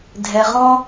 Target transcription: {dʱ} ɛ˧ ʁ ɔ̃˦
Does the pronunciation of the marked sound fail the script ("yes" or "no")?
no